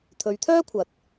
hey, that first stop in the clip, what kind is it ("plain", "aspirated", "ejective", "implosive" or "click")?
aspirated